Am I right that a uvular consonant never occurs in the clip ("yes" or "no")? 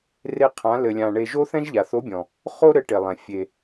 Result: no